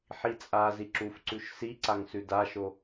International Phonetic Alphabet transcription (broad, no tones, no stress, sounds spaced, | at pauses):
ħ i t͡sʼ a z i ǁ u f ǀ ʉ ʃ s i ǀ a ŋ s ʉ d a ʃ o